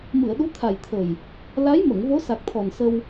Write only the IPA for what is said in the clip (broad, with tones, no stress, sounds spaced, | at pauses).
m ɨ˨˩˨ ə̯ ɗ u˧˥ t̪ʰ a˨˩ j t̪ʰ ə˨˩ j | l a˧˥ j m ə˨˩˨ ŋ v o˧˥ s a˨˩ k̚ t̪ʰ ɔ˨˩ n s ə˧ w